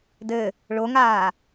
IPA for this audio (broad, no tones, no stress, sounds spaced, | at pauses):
d ɘ | ɭ o ŋ aː